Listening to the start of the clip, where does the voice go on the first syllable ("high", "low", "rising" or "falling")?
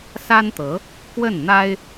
high